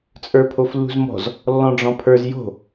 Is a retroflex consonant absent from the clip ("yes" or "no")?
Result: no